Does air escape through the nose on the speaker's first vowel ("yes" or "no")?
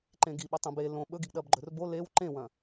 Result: yes